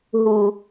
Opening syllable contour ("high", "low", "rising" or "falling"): low